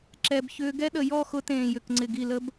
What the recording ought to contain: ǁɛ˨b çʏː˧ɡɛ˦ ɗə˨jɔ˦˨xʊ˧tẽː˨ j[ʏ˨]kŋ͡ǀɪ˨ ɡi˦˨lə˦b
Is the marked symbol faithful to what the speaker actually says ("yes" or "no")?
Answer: yes